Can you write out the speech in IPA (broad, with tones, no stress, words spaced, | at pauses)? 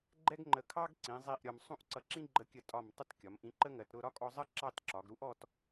ɡ͡ǃɛ˥ɡŋ͡ǃə˧˩ kʰɑ˥ɡǀĩ˩˧ zˤi˥˧ʔɾʲɒ˧m sˤũ˥˧ʔǀʌ˧ǁĩ˥ ɡ͡ǃə˧kʲə˧˩tʼɒ˧˩m tˤə˥˧tkʲɒ˩˧mʔĩ˧ ǃə˥ŋɜ˩˧tɾʊ˥˧ ɾɒ˥kʼɔ˧zˤɜ˥ ǁɑ˥˧tǁɒ˩˧ɡɾu˥ʔɔ˥˧t